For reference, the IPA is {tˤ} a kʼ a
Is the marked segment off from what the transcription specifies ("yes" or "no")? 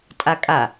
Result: yes